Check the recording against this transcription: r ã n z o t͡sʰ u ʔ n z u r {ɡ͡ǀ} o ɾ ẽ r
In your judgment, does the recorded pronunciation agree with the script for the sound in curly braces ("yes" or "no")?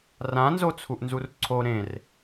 no